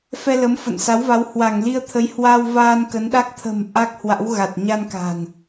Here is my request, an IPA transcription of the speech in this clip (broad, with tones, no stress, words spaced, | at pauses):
fɛ˧lə˨˦mfə̰˧˨nsa˨˦w va˨˦whwa˧˩ŋli˧ə̯t̪ʰə˨˦j hwa˧w vaː˧nkə˨˦nɗa˦˥k̚ t̪ʰə̤˨˩m ʔa˦˥k̚hwa̰˧˥wɣa˨˩t̚ ɲa˧nka̤˨˩n